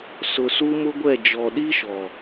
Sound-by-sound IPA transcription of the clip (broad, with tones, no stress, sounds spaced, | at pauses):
s ʊ˨ s u˦ m ʊ˦ ɡʷ ɛ˦˨ d͡ʒ ɔ˨ ɗ i˦ ʃ ɔ˨